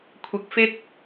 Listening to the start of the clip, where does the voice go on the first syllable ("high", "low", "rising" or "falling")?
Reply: high